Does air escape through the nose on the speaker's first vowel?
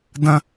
yes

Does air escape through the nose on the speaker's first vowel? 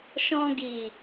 yes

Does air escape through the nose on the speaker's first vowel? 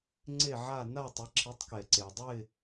no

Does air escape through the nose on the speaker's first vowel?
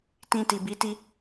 yes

